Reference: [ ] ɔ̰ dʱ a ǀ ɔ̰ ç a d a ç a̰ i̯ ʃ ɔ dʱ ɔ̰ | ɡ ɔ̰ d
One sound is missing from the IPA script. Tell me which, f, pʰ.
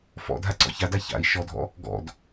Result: f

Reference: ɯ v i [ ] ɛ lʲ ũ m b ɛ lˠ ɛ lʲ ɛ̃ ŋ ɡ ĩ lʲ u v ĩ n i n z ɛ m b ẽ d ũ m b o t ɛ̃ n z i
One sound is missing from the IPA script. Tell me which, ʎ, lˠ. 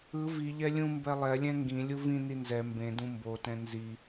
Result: ʎ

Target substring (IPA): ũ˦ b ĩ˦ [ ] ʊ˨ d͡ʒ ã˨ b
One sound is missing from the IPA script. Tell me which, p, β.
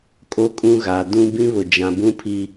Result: β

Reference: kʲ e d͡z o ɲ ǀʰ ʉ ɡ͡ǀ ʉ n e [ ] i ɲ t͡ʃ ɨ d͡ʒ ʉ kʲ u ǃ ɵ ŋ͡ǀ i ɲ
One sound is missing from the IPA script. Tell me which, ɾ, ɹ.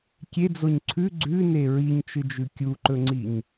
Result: ɹ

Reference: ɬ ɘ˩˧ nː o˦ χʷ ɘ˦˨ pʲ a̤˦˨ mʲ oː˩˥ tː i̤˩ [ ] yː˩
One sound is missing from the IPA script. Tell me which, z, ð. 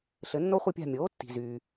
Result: z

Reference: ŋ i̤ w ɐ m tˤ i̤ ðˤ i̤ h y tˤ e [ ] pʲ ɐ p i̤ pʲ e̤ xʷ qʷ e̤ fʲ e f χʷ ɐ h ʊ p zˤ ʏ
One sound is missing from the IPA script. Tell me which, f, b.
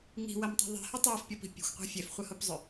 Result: f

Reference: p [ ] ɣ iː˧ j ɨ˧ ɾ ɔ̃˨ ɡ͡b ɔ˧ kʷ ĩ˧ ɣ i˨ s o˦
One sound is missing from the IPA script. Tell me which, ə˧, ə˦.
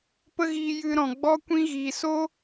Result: ə˦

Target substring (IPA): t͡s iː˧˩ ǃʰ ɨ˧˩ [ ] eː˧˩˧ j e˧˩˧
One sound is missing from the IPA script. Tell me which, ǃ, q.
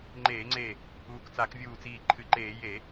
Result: ǃ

